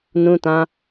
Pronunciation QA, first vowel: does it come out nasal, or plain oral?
nasal